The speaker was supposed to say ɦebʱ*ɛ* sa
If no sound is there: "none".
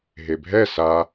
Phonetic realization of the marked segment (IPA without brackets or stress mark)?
ɛ